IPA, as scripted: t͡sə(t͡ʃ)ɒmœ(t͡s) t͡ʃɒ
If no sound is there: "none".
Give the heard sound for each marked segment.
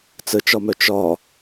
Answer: t͡ʃ, none

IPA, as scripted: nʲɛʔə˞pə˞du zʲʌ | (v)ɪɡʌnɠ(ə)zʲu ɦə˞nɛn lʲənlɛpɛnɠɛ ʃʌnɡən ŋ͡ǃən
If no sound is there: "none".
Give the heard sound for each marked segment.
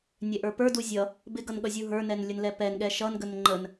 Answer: b, ʌ

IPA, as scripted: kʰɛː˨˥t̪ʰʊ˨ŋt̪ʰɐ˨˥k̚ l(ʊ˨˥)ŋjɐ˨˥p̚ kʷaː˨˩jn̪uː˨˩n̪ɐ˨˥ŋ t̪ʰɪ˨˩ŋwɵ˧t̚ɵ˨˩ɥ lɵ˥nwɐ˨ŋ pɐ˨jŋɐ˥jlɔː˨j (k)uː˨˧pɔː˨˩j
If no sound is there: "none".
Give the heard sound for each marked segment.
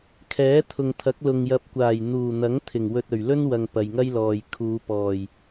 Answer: ʊ˨, kʰ

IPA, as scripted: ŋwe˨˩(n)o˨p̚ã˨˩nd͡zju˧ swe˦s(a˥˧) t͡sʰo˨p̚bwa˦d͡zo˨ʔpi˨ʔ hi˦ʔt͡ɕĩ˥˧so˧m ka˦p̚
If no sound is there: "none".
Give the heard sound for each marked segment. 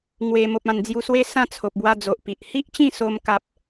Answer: m, ã˥˧

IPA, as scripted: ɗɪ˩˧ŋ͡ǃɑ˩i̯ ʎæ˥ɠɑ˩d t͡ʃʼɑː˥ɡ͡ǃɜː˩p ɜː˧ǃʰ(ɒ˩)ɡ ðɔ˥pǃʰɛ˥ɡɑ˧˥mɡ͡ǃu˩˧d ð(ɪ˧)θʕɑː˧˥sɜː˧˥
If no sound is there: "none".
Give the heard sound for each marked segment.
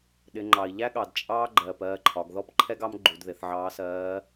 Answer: ɒ˩˧, ɪ˩˧

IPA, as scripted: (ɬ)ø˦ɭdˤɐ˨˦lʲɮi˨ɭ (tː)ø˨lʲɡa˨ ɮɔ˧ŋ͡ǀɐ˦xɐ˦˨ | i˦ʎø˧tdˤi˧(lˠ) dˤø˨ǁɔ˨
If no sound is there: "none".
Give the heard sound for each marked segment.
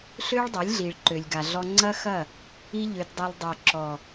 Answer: ɬ, ǃ, lˠ

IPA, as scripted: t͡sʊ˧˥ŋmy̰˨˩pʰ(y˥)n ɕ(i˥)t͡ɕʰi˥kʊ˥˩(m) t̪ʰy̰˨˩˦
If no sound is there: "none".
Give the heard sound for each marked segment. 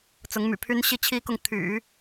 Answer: y˥, i˥˩, ŋ

